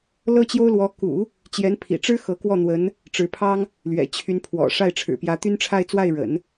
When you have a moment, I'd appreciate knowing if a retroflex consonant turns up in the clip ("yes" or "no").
yes